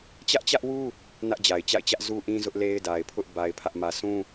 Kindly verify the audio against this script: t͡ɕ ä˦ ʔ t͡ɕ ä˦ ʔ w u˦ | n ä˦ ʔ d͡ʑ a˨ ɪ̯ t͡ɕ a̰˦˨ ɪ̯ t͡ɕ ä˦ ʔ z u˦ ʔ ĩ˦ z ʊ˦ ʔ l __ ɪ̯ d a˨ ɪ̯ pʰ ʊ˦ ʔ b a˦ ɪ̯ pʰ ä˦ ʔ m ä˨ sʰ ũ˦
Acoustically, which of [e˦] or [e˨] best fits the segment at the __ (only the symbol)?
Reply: e˦